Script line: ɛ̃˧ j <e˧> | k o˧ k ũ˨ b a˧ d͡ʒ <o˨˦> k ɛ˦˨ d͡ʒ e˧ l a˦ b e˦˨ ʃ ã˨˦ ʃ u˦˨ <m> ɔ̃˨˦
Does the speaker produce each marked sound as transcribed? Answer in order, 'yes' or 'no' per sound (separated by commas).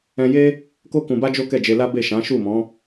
no, no, yes